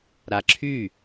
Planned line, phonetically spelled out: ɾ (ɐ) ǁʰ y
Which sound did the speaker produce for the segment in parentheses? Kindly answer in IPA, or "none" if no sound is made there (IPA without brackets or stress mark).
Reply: a